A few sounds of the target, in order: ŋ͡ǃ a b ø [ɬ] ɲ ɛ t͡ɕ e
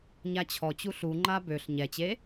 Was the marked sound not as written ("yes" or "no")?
no